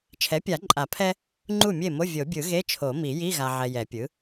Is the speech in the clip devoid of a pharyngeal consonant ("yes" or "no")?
no